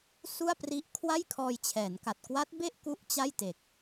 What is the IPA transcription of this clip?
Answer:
su˥˩a̯pri˦˥ʔ kʰwa˥˩jkʰɔː˧jt͡ɕʰɛː˩˦nka˨˩t̚ kwa˦˥t̚be˥˩ʔ ku˥˩ʔt͡ɕa˥˩j te˨˩k̚

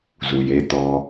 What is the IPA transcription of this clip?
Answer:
zu˨je˦t̪ɔ˦

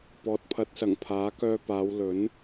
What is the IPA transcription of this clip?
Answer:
pɔː˨t̚pʰɐ˨˥t̚sɐ˨˩ŋ pʰaː˨˥kœː˧paː˨˧w lɵ˨˥n

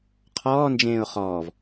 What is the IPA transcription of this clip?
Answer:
qʰɔːnd͡ʒẽːʊ̯ χɔːv

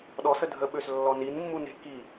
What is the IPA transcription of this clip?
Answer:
ɗɔsə dʱəɓøs lːɔninmːu ne̤ ki

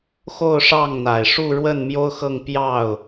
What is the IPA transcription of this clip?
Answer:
xo˥˧ʊ̯ʂɑ˥˩ŋn̪a˨˩ɪ̯ ʂu˥˧ɻwə˥˩n mjo˥ʊ̯xɤ˥˧ŋ pjɑ˥˩ʊ̯

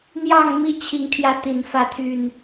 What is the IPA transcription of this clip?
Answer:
n̪jɑ˥˨ŋ mi˥˨t͡ɕʰi˨˦ŋt̪ʰjä˨˦ t̪i˨˩nfä˨˦t̪ʰy˨˩n

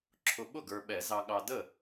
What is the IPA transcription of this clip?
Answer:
ǁʰʊ˨ ɓʊ˥˩ɡə˞˨ɓɛ˨˩˦ zɑ˨ɠɑ˨də˥˩

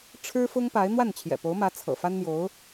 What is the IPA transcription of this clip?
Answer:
ʈ͡ʂʰɻ̩˥ fʊ˥ŋpa˧˥ɪ̯ n̪wa˥˩nt͡ɕʰjɛ̰˨˩po˧˥ʊ̯mä˧˥ t͡sʰɤ̰˨˩ fa˥nn̪jo˧˥ʊ̯

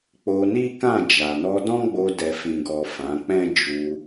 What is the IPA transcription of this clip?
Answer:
k͡po˧ni˦kã˦˨ d͡ʒa˨nɔ˧dɔ̃˦ɡ͡bo˧ dɛ˨fĩ˨ɡɔ˨ fã˨˦k͡pɛ̃˦ d͡ʒu˧

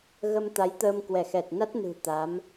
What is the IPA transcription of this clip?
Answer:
ɣə˧mt̪a˨˦jt̪əː˧m kwɛ˧˩xɛ˨˩t̚na˦˥t̚nɨ̤˨˩ t̪a˨˦m

